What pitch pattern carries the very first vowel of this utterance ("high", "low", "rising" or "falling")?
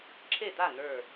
falling